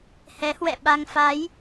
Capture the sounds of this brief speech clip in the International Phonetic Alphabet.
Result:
hɛ˨˦hwɛ̰˧˨ɓa˧ŋ fa˨˦j

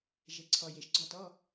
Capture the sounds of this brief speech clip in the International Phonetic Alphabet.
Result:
ʒe˨˩ǀʰɔ˨˩ je˨˩ʃ ɡ͡ǀɔ˥˨ tɔ˧˥˧

